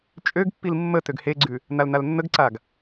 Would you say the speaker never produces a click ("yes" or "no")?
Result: no